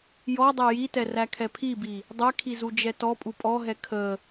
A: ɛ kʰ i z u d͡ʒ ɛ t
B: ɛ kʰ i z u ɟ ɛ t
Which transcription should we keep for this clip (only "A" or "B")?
A